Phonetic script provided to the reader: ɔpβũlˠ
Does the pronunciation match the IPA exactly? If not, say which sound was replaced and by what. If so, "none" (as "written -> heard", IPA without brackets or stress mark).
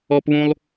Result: none